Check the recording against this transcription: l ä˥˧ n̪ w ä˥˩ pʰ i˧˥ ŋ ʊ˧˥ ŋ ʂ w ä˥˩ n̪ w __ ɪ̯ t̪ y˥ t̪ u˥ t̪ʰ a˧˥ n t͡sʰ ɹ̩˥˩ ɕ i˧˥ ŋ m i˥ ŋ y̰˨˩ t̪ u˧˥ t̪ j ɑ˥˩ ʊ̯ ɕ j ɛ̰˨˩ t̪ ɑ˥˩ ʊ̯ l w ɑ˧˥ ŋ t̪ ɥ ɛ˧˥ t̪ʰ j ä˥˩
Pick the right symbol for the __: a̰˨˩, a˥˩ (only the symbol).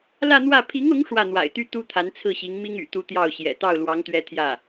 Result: a̰˨˩